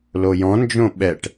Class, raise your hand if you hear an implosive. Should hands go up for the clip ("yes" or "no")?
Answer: yes